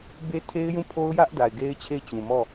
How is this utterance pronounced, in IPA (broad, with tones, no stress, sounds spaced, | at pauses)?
b e˦ tʰ e˦ ɪ̯ j ũ˦˨ pʰ o˦ ʊ̯ j ä˦ ʔ d a˨ ɪ̯ ɡ e˦ ɪ̯ t͡ɕʰ e˦˨ ɪ̯ t͡ɕ ũ˨ m ɔ˦˨